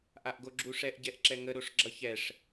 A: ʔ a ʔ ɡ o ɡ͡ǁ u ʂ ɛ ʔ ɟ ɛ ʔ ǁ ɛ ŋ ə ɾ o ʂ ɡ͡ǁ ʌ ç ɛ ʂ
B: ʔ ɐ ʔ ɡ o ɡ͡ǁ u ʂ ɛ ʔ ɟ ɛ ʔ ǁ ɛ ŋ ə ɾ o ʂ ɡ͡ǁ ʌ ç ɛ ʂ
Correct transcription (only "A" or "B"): A